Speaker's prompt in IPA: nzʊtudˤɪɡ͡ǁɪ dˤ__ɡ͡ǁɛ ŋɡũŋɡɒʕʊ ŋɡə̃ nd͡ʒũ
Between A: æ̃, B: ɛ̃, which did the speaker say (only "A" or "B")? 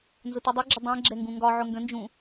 B